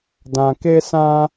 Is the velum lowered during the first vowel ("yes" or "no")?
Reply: yes